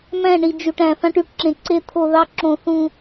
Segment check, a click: present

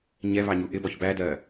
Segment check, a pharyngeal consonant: absent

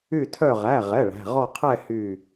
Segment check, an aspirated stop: present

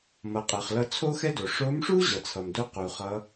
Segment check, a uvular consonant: present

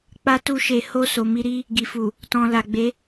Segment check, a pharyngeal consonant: absent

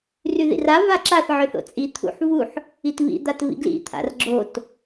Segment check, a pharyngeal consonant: present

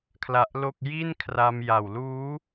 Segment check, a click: absent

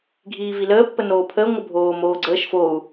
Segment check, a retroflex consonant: absent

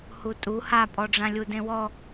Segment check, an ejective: present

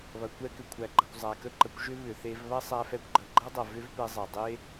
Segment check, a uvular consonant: absent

